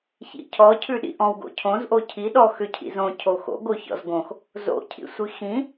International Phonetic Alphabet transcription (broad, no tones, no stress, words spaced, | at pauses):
çḭcʰɔ cʰʉɗḭʔɔ̃w ɡo̰cʰõz ʔocʰi ɗɔ xʏcʰḭzõ cʰoxo̰ ɡoçɔ̰zɡõx | zo̰ cʰḭsʷixĩ